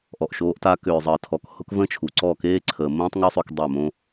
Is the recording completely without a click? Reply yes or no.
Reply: no